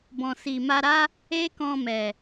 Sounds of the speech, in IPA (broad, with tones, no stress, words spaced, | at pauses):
bɔ̃˨si˨ma˧ɾa˦ | e˦kɔ̃˧mɛ˨